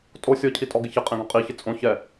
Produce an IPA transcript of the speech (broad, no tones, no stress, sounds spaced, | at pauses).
tʼ o sʲ ɔ cʰ i tʼ ɔ ɡ ɪ ç ɪ qʼ ẽ ɡ õ qʼ i ç ɪ t͡sʼ õ ç ɛ